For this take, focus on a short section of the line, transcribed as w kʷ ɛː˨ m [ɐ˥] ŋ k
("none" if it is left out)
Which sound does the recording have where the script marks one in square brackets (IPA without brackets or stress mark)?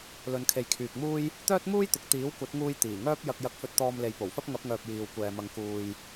ɐ˨˧